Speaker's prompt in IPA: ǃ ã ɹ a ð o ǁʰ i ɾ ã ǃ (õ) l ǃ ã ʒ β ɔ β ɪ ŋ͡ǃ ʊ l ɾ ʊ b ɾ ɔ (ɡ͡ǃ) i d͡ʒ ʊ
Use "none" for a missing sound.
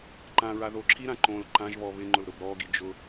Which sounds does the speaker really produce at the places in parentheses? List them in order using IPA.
õ, ɡ

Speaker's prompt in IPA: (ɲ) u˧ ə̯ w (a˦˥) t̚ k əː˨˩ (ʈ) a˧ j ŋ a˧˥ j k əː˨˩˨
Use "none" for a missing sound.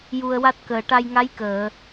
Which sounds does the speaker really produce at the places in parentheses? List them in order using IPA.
j, a˦˥, ʈ

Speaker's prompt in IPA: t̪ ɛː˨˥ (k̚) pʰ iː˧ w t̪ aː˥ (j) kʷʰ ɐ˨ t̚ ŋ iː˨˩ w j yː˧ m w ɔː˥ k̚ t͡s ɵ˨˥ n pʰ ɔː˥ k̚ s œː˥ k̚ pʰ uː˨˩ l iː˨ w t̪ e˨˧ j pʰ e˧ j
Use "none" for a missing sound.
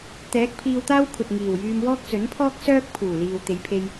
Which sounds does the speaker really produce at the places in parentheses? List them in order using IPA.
k̚, w

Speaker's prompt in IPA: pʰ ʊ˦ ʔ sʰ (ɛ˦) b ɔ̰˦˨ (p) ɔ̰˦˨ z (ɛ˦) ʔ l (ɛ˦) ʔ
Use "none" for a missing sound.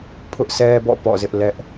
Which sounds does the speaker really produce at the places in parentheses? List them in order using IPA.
ɛ˦, p, ɪ˦, ɛ˦

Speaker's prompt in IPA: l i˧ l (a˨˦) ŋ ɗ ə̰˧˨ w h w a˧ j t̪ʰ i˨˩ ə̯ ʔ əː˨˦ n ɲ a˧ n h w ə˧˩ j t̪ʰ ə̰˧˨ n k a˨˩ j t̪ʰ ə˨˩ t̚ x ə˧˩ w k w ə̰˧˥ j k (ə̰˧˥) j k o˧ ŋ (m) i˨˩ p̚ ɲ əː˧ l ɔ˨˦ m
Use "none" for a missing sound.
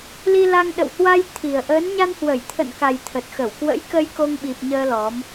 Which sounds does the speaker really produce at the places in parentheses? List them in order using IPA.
a˧, ə˧, ɓ

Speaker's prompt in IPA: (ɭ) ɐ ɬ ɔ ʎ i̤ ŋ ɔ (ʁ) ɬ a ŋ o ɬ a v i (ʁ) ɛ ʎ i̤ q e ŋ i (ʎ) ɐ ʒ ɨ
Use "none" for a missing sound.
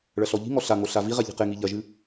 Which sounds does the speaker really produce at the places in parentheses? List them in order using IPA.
ɭ, none, ʁ, ʎ

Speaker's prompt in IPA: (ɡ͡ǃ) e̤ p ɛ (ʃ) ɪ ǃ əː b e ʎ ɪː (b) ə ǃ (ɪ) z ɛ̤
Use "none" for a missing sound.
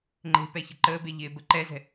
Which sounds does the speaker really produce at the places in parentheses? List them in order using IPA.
ŋ͡ǃ, ç, b, ɛ

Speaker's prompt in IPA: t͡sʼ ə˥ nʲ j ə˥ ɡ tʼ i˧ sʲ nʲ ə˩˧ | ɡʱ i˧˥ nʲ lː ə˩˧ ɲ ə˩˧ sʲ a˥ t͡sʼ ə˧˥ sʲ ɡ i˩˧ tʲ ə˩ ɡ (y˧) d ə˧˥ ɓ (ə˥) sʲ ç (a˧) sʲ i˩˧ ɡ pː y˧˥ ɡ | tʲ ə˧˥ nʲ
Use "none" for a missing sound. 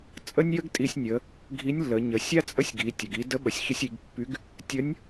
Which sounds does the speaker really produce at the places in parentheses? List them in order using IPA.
i˧, ə˩, ə˧

